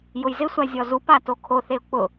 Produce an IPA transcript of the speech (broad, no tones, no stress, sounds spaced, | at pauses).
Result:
j ʊ j z ɪ sʷ a zʲ ɔ z u p a t o kʰ o θ e ʊ̯ k͡p ʊ